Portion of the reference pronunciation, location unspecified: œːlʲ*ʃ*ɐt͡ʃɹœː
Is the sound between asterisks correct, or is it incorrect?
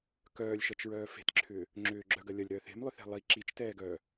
correct